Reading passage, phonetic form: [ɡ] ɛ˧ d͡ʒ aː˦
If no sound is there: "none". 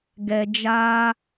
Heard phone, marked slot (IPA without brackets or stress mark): ɡ